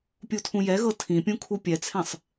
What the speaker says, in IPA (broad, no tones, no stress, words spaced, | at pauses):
pʲutʰũjɛɣɤ tʰĩpʲũ kʰupʲɛt͡sʰɛ̃sˤ